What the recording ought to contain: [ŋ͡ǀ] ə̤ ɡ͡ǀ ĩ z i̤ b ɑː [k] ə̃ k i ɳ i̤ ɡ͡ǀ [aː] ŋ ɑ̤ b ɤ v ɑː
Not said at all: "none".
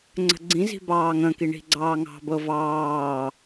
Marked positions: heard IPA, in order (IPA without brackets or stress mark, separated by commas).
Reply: ŋ͡ǀ, ŋ, ɑː